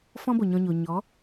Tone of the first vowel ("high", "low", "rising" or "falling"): high